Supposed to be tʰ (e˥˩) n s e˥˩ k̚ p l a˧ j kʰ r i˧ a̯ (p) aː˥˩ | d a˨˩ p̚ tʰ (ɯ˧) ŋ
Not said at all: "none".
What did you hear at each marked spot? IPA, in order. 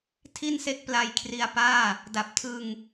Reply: i˥˩, p, ɯ˧

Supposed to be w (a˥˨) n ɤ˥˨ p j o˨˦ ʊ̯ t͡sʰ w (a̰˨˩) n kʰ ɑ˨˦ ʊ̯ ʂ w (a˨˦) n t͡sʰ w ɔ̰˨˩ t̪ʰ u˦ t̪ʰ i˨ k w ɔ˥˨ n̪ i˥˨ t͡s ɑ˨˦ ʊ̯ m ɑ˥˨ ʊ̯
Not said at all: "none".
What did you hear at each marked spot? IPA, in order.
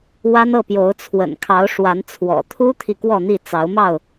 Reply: a˦, ə̰˨˩, a˨˦

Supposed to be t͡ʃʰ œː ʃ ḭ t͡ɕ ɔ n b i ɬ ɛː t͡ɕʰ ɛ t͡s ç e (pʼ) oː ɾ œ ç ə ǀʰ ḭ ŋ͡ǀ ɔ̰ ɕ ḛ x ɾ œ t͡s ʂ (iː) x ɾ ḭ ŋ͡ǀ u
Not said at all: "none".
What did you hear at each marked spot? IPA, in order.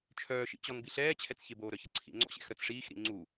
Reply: b, iː

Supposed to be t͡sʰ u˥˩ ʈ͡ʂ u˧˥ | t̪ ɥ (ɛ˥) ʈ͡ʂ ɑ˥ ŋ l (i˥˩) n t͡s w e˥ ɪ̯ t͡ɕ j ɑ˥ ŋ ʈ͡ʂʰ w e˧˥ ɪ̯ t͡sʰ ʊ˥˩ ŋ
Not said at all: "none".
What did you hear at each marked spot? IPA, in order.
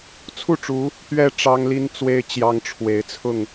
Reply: ɛ˥, i˥

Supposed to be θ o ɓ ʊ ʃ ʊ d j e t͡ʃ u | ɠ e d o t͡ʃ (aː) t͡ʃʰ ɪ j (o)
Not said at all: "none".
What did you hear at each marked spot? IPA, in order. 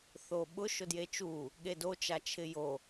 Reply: a, o

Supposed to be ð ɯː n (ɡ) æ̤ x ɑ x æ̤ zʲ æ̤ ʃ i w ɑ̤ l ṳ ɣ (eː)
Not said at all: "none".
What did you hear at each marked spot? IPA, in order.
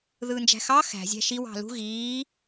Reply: d͡ʒ, iː

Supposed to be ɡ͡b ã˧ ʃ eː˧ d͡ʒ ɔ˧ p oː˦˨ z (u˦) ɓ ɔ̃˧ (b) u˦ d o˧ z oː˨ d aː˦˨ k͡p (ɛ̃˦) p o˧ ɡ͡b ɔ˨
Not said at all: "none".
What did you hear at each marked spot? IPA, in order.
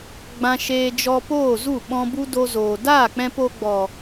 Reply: u˦˨, b, ɛ̃˧

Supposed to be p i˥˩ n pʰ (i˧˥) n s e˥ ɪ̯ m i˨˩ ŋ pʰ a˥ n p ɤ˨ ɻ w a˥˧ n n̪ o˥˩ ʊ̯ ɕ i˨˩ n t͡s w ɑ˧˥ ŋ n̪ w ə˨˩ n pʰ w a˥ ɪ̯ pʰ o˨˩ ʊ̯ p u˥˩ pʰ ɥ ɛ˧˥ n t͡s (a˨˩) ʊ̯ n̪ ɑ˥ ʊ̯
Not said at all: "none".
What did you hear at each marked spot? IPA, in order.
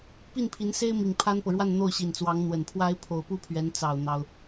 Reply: i˧˥, ɑ˨˩

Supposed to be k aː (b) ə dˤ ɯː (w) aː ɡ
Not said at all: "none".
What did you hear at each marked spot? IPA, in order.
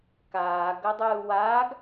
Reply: ɡ, w

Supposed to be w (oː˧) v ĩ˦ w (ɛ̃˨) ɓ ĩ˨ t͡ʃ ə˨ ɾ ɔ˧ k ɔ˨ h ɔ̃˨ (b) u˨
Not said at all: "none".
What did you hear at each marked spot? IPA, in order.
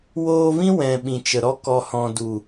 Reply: oː˧, ɛ̃˨, d

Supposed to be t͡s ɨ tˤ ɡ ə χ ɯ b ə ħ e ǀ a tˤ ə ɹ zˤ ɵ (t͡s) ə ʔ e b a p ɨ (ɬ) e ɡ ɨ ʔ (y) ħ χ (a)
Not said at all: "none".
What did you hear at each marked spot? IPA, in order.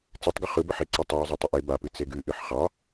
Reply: tˤ, t͡s, ɨ, ɑ

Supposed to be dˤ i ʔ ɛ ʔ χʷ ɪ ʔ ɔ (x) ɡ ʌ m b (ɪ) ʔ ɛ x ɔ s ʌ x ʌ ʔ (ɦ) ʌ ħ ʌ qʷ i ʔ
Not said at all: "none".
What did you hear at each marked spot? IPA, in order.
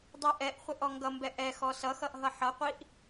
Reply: ŋ, ɛ, ɦ

